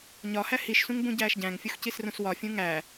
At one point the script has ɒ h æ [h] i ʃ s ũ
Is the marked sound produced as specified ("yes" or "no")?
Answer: yes